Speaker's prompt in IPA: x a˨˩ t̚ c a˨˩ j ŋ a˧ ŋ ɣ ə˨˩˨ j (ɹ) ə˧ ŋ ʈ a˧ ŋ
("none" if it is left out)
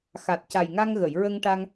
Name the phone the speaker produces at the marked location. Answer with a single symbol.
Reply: ɹ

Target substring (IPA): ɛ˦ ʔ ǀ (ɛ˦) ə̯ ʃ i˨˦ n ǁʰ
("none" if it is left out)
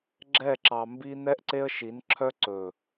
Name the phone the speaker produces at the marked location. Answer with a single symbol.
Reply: e˦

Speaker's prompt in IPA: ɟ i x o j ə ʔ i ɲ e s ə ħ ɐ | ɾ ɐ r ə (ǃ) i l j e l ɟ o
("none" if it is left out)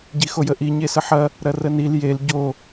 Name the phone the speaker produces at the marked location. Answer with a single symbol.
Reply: n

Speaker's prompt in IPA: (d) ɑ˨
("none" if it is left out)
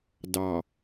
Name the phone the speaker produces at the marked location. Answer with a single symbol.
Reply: d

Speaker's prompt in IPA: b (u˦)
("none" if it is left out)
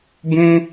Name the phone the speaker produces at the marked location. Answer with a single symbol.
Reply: ũ˦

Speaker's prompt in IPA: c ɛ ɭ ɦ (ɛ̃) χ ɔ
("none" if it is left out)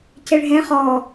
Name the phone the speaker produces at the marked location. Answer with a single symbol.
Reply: ɛ̃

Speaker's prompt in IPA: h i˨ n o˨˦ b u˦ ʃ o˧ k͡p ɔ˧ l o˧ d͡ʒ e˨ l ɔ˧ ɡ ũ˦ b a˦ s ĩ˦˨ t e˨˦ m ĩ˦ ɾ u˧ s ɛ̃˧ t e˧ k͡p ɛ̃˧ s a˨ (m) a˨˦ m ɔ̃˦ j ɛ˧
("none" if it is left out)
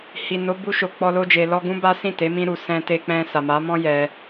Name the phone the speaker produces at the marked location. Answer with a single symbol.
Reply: m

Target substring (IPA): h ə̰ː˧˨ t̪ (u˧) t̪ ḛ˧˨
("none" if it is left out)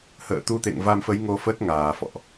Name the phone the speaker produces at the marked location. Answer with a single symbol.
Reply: u˧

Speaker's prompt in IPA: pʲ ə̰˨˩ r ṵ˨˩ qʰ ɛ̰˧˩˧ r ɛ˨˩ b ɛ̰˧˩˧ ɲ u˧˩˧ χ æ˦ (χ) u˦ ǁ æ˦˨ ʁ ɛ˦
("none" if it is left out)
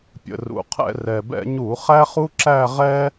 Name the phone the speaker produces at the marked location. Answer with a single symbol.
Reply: χ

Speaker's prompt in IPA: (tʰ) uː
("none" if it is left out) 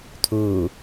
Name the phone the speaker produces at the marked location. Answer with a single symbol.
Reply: tʰ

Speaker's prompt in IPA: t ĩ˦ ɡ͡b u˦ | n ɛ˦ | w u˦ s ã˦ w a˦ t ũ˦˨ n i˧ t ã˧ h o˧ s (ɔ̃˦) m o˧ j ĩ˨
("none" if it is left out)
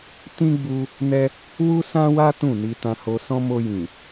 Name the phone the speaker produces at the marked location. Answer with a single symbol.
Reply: ɔ̃˦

